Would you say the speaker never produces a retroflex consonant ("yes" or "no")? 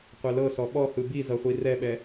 yes